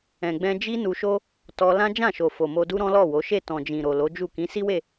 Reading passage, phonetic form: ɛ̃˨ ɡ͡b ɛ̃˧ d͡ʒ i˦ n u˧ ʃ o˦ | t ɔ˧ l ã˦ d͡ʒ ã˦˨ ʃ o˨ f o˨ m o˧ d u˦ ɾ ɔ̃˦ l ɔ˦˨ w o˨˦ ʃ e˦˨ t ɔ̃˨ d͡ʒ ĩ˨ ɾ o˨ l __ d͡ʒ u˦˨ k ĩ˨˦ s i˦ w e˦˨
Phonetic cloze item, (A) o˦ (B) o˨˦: B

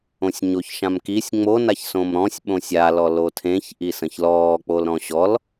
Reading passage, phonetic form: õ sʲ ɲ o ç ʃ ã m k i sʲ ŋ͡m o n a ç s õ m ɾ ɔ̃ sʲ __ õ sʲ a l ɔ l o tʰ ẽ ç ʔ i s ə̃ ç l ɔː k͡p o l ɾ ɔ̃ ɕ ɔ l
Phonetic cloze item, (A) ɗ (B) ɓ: B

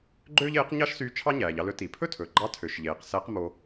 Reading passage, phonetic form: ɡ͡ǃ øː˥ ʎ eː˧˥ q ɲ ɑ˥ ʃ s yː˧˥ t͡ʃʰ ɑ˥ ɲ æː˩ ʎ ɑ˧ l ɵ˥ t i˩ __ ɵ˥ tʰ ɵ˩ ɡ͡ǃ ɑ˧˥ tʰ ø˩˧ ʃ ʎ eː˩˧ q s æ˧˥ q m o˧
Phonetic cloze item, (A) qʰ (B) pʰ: B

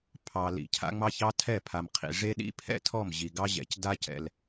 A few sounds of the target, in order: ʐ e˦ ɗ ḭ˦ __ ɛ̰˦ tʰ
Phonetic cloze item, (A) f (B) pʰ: B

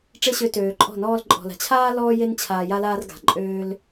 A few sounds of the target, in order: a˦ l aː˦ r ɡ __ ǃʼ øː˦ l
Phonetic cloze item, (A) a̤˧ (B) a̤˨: B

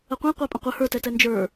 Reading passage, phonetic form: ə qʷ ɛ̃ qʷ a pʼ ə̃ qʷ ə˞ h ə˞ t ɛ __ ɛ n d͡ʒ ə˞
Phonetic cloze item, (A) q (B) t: B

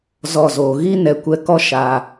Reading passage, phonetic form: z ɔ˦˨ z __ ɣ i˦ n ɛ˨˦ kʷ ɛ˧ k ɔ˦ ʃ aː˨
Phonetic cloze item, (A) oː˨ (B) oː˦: A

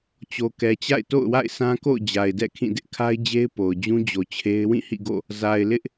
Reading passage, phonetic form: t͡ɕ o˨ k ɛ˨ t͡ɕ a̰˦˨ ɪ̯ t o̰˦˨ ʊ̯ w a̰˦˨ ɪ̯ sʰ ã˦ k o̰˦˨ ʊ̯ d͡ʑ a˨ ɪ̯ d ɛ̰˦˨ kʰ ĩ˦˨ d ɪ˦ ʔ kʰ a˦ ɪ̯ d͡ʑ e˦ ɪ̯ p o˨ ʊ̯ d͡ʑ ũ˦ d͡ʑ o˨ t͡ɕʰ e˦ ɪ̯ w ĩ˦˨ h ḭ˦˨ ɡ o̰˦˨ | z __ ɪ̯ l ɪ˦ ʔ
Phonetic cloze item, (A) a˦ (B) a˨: B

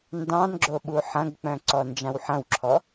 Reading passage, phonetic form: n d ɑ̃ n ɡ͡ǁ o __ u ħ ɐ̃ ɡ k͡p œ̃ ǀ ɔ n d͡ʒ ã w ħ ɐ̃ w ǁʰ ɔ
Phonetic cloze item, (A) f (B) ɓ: B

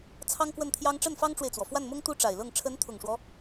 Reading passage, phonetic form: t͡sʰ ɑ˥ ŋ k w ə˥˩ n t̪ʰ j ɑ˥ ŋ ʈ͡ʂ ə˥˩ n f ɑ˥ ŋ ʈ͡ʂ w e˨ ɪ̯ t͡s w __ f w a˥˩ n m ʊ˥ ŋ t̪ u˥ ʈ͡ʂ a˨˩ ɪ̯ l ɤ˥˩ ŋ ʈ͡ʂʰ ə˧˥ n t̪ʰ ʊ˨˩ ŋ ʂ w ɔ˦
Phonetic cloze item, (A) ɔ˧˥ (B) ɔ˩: B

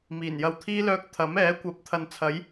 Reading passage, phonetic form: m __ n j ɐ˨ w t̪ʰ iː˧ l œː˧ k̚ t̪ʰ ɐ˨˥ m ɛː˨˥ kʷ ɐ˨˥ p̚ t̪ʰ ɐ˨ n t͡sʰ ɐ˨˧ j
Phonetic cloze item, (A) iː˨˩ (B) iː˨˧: A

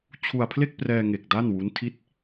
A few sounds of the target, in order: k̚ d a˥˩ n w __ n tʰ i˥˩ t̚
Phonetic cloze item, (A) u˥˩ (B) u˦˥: B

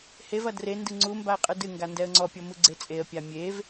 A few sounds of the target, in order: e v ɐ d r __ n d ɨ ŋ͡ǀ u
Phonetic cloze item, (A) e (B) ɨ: A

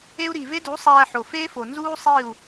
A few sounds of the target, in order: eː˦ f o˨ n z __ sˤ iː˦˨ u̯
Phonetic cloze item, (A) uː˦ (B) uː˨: A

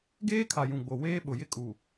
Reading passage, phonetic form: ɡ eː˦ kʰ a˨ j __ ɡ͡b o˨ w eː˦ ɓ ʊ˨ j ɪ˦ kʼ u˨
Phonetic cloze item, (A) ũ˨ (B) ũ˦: A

